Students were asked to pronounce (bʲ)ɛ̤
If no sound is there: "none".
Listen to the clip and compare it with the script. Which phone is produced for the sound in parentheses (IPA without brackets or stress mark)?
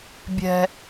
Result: bʲ